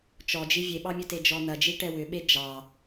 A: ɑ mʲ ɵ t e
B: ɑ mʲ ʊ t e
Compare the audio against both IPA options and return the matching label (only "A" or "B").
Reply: A